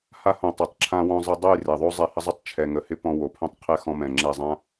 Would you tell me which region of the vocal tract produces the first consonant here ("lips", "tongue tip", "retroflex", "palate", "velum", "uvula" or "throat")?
throat